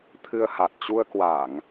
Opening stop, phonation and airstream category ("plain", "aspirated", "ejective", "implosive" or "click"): aspirated